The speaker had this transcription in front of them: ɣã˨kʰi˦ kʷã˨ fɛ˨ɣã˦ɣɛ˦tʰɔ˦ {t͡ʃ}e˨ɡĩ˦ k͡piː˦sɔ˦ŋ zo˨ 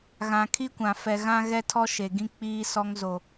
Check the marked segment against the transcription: incorrect: ʃ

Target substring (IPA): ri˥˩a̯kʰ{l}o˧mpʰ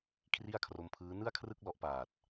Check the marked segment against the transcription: incorrect: r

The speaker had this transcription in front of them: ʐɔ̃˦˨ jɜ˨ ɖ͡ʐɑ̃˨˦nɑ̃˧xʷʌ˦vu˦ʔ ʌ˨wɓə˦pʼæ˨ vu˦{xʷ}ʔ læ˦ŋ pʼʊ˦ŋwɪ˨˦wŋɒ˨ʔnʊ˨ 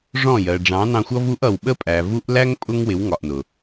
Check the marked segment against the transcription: incorrect: none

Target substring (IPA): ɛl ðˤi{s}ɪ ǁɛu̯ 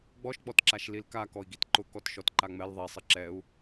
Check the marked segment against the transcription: incorrect: sˤ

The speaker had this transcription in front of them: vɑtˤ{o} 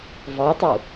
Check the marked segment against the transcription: incorrect: u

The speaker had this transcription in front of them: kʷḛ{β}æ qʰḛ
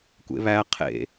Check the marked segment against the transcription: correct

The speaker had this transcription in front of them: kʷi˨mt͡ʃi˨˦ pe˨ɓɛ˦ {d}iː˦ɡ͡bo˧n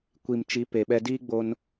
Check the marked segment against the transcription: correct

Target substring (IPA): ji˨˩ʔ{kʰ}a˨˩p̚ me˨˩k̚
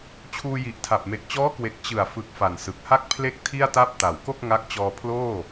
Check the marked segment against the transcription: incorrect: tʰ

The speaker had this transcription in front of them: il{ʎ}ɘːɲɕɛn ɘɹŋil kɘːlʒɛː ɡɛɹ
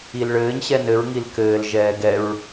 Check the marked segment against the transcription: incorrect: ɭ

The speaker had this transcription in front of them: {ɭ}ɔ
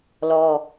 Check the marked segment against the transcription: incorrect: l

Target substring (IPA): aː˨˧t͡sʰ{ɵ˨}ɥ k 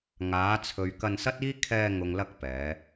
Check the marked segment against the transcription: correct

